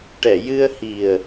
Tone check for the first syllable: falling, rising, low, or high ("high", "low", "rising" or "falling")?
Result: low